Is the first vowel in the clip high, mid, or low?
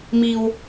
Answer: high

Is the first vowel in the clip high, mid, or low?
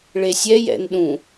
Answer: mid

